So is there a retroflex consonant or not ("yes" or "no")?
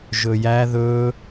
no